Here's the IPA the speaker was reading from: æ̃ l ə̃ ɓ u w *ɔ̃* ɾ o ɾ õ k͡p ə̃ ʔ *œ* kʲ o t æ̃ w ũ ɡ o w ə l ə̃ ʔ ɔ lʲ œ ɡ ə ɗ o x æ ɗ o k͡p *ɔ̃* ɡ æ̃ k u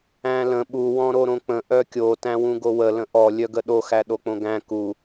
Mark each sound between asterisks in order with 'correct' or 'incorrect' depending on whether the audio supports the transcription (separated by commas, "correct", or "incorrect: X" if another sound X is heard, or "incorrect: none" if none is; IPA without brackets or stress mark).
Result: correct, correct, incorrect: õ